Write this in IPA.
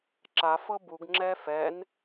ǁ a f ɤ b u ɡ ŋ͡ǁ ɛ f ɛ n

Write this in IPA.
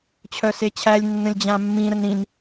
t͡ɕʰ œ s e t͡ɕʰ æ lʲ nː ə̃ lʲ d͡ʑ ã mː ĩ ɾ ə n ɾ ĩ n

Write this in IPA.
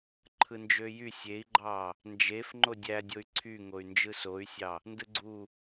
ǃʰ ɯ n d͡ʒ ø j y sʲ e i̯ ɡ͡ǃ ɑ | n d͡ʒ e f ŋ͡ǃ o dʲ æ dʲ o y̯ ǀʰ y ŋ o y̯ n d͡ʒ ɯ s o y̯ sʲ ɑ | n d ɯ ɡ͡ǀ u

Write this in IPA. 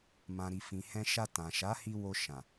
m ã˨ ɾ i˨ f ĩ˨ h ɛ̃˧ ʃ a˧ t ã˨ ʃ a˨˦ h i˧ w o˧ ʃ ã˨

